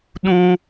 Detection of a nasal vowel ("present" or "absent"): present